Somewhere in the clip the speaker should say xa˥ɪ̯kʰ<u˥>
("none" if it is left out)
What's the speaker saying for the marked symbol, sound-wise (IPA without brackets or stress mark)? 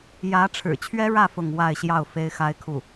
u˥˩